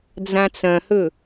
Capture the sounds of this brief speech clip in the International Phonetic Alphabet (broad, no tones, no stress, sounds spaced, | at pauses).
d͡z ã t͡s ɐ̃ h ɵ